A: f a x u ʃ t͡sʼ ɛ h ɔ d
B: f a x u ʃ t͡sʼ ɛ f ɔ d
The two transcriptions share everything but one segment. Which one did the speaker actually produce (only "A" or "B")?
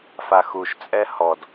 A